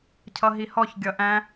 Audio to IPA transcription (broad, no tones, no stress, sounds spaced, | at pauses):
cʰ ʌ ɦ i h ɔ ç ɡʲ ʌ ʔ æ̃